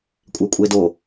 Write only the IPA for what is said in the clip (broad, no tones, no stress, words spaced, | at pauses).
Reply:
kʷʼekʷʼedo